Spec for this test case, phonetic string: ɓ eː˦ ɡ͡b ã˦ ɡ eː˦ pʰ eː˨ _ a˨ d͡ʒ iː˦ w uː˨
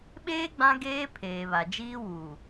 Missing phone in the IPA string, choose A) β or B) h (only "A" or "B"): A